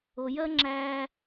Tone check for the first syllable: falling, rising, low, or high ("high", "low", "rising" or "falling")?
low